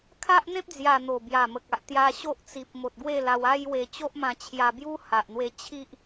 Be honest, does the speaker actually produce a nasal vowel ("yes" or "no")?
yes